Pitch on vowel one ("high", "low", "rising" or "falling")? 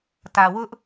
low